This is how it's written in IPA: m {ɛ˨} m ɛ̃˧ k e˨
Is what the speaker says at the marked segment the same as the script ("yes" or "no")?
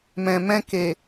no